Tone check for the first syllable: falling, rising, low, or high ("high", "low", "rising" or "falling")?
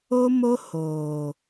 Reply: high